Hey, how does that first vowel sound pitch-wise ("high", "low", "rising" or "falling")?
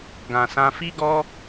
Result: low